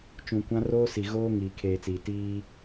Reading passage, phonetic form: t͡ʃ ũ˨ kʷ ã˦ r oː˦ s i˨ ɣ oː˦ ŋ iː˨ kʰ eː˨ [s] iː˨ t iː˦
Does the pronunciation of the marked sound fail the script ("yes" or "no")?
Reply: yes